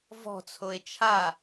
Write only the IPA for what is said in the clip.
vɔ̤t͡sʰoe̯ t͡ʃʰa

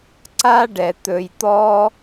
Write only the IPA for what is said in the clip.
ǀa˥ɖɛ˩t̪ɵ˨j t̪ɔ˦

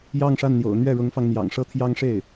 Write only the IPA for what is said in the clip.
jɑ˥˧ŋʂa˥˩nn̪jo̰˨˩ʊ̯ n̪ɥɛ˥˩ɻʊ˧˥ŋfɑ˧ŋn̪jɑ̰˨˩ŋ ʂɤ˥t̪ʰjɑ˥ŋʂe˥˩ɪ̯

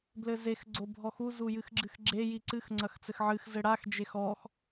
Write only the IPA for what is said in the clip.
blɘzex ɡ͡ǀobʱɔxu zujɨxɡ͡ǁɨxɡ͡ǁe jiǀɨx ŋ͡ǀɐxt͡sɘxʕɨx zɘɽax d͡ʒexɔx

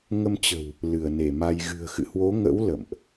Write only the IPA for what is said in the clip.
ŋə˧mt͡ɕə̤˨˩w | lɨ˧˩ə̯ne˧˩ma˧j ɣɨ̤˨˩ə̯xɨ̰˧˨hwo˨˦ŋə̰˧˥w lə̰˧˨mʔ

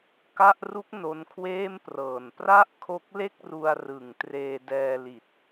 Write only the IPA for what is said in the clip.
ka˥˩ʔ ru˦˥k̚ no˧nkʰweː˥˩mprɤː˨˩n pra˥˩ʔkʰo˦˥k̚le˥˩k̚ru˧a̯ rɯ˨˩ŋ treː˧dɛː˧li˨˩t̚

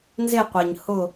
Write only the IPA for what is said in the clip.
nze˦˨qʷe˩ɲ hʊ˦˨

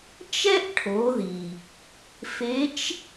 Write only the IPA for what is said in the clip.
t͡ʃɛ˥ʔ ʈʰo˩˧ði˩ | fe˧˥t͡ʃ

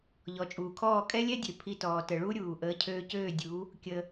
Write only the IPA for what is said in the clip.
ʎɔ˩t͡ʃʼuː˩kʰɔː˥˩ kʼɛ˥lʲɛ˥ dʲø˩pʰi˧tɔː˩ tə˩ ɭu˥ɾʲuː˩ ʔəː˩˥cʰøː˧cøː˥˩ dʲu˩˥ | kʲə˧

